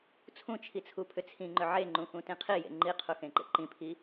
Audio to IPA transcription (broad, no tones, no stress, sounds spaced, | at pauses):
t͡sʰ ũ t͡ʃʰ i t͡sʰ u pʰ ʏ t͡sʰ ĩ ŋ͡ǃ ʏ ʕ e ŋ͡ǃ ũ x ũ t ĩ qʰ i j ḛ ŋ͡ǃ i qʰ u x ẽ ǃ ḛ ǃ ĩ pʰ i